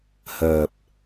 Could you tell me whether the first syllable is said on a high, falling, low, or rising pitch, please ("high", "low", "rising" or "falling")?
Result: low